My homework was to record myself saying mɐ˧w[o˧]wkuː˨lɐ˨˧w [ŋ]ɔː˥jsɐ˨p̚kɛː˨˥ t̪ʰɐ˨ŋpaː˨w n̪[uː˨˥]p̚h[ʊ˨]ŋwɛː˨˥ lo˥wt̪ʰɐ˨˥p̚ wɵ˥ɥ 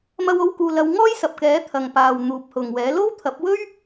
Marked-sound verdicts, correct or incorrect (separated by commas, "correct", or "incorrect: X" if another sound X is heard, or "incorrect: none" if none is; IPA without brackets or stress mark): correct, correct, correct, correct